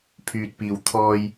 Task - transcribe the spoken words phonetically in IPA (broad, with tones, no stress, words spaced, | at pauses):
pʰyː˨t̚piː˨w t̪ʰɔː˧j